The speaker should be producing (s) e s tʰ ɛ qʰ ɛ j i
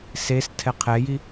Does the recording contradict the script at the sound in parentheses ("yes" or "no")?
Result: no